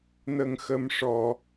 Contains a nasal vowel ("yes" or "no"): no